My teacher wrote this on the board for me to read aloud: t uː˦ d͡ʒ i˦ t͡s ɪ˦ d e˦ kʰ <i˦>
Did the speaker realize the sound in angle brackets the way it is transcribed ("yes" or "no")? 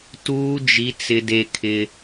no